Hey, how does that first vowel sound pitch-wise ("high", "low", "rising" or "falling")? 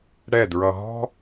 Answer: falling